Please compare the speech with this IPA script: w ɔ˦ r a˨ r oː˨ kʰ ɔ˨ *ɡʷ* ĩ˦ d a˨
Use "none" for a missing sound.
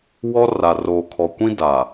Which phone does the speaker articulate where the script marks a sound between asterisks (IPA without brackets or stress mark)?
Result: kʷ